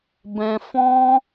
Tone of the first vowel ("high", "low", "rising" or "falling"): high